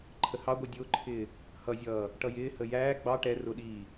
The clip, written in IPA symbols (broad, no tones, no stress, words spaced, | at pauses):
ǃʰəhɑɡʷi dʲʊːǃʰɪː | hʌzʲʌː | ʈʌjɪːhə jæː ɡ͡bɑ ʈɛ rʊɗiː